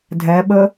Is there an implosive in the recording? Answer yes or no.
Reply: yes